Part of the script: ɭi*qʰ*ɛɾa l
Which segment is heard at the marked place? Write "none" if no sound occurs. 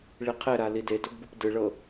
qʰ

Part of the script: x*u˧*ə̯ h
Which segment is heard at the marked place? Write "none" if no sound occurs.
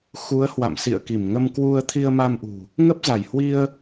u˨˦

